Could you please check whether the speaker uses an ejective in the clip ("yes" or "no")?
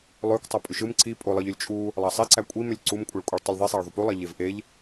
yes